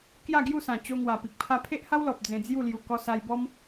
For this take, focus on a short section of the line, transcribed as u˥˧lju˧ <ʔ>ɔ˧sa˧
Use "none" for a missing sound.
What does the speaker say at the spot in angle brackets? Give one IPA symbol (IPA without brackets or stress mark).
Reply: k